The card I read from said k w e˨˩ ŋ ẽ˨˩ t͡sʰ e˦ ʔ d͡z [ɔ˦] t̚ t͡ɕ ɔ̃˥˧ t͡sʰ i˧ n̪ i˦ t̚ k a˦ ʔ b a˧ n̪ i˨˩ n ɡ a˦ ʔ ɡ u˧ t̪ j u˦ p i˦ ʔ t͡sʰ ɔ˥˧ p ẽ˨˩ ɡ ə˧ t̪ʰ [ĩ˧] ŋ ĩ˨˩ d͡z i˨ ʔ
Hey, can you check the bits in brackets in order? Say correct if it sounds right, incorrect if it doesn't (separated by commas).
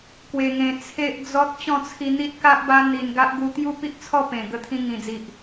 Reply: correct, correct